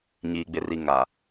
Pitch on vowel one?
low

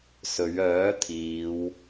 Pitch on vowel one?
rising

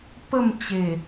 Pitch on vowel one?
falling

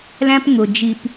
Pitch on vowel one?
high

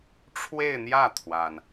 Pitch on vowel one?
falling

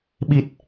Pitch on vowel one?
low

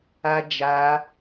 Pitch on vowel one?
high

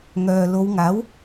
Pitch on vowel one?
low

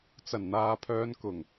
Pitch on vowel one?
low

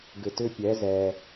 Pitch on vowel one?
low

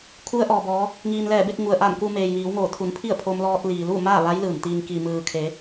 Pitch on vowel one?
rising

